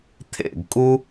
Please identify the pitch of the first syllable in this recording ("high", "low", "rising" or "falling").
falling